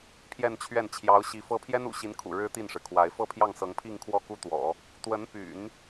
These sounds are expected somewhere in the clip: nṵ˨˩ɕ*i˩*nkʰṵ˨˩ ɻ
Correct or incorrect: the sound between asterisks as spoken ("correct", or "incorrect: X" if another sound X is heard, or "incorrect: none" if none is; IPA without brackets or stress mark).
incorrect: i˧˥